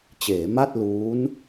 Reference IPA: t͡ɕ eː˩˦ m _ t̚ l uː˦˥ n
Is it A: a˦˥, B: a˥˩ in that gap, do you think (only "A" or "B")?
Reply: B